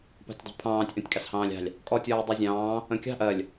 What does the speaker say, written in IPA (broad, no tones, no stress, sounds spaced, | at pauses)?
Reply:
p ɑ̤ tʲ dˤ ṳ pʰ ɑ̃ː tʲ ʔ ɔ̃ tʲ kʼ ɑ s h ɑ̃ː lʲ ɑ̤ lʲ | kʼ ɔ tʲ ɔː dˤ ɜ zʲ ɑ̃ː | ə̃ kʲ ɑ̤ ʔ ɜ lʲ